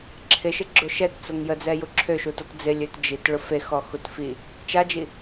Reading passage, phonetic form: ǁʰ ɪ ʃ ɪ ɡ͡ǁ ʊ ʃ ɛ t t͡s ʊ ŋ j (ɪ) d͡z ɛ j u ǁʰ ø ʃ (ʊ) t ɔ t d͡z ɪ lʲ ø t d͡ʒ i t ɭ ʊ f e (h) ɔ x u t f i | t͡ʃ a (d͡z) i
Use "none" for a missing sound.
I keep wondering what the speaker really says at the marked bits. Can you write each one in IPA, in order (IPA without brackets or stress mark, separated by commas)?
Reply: ə, u, x, d͡ʒ